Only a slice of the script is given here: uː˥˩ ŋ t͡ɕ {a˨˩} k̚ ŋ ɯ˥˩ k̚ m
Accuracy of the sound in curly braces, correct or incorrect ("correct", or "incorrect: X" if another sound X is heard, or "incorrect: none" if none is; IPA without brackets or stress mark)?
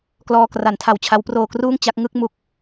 incorrect: a˦˥